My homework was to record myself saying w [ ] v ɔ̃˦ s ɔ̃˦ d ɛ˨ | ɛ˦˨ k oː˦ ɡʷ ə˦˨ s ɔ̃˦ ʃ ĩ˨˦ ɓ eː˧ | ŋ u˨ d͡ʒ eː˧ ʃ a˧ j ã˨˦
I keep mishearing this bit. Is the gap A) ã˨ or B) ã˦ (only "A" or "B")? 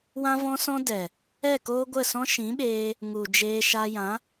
B